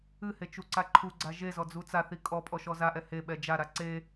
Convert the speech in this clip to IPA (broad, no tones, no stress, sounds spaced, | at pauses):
ɨ h e t͡ʃ u ǀ a ǃʰ u ɡ͡ǀ a ʒ e z ɔ d͡z u t͡s a θ i kʼ ɔ pʼ ɔ ʃ ɔ z a ʔ ɛ h e ɓ ɛ d͡ʒ a ɾ a ǀ e